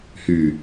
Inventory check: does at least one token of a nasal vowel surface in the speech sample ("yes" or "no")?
no